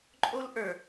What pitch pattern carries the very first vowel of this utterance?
high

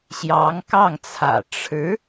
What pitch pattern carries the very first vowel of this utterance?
rising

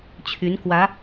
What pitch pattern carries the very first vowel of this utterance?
rising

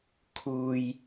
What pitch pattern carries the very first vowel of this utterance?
low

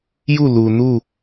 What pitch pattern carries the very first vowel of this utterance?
falling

